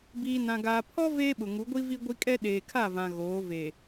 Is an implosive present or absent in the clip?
present